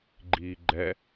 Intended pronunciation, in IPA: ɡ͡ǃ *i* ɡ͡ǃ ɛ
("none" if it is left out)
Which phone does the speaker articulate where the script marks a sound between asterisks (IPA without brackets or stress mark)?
iː